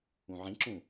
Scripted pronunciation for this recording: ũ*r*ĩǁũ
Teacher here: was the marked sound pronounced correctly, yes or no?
no